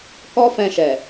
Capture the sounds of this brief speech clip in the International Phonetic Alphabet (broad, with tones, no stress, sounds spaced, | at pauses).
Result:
k ɔ˦ f ɛ̃˧ ʃ ɛ˨